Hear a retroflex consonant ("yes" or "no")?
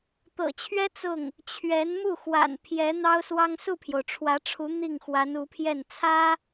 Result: yes